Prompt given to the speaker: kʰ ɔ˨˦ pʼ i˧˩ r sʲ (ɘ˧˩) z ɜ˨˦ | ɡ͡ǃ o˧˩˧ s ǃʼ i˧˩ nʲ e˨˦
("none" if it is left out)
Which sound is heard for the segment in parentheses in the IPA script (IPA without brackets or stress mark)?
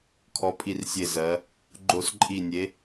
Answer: e˧˩